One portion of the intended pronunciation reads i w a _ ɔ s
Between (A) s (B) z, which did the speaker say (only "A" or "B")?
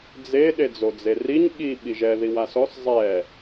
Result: A